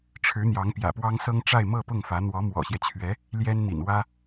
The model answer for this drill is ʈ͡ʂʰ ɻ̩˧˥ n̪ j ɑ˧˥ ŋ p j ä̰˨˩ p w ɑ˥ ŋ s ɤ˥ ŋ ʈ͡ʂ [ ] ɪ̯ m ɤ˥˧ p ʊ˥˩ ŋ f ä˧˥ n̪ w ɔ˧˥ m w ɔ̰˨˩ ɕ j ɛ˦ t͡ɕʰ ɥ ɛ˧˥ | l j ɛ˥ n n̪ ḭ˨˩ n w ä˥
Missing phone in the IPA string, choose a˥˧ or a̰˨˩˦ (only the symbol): a˥˧